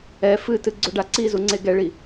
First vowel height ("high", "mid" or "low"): mid